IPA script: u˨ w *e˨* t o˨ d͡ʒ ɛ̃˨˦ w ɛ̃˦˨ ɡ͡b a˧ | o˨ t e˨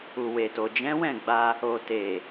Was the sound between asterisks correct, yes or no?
yes